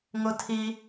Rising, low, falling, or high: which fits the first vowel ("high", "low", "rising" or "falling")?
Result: high